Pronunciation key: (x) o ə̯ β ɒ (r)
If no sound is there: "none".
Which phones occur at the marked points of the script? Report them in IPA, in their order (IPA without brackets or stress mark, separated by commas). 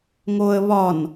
ŋ, n